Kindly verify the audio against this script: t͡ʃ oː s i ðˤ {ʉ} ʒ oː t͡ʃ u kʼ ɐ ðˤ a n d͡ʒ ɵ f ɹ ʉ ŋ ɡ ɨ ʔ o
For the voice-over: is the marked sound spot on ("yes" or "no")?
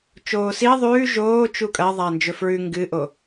no